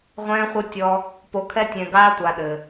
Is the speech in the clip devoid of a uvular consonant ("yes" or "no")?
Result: no